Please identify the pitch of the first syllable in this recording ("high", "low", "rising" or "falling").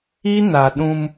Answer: high